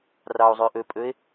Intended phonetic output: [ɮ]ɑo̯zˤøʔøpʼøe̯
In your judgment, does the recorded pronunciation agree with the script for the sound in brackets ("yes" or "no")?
no